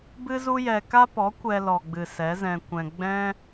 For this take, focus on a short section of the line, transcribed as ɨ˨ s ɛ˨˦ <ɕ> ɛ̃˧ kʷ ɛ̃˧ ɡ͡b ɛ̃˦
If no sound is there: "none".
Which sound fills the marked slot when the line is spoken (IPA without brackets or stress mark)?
z